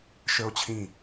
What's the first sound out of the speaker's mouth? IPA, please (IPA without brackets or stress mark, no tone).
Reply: ʃ